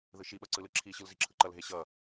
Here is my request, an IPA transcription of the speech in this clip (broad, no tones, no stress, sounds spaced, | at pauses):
ð ɯ ʃ i ɓ ʌ ǀ ɯ l ɯ ǁʰ i ɕ ɯ l z i ǁʰ ɯ ǃ ʌ l ɦ e ɕ ʌ